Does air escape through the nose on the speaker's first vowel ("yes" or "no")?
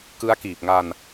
no